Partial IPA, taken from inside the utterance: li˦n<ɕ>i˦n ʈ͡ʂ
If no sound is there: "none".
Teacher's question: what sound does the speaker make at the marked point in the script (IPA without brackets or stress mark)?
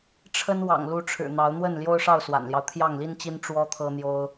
t͡ɕ